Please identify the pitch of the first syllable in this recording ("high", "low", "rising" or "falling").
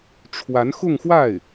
rising